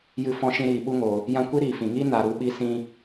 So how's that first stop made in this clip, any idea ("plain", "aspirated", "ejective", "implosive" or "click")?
implosive